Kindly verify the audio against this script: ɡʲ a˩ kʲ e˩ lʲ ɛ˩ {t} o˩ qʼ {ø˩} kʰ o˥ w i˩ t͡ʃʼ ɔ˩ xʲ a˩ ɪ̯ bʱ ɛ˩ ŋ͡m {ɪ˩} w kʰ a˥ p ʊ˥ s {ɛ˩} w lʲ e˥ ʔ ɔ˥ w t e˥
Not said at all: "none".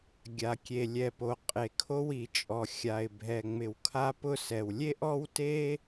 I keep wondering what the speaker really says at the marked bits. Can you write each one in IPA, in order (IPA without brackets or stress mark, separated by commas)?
p, e˩, ɪ˩, ɛ˩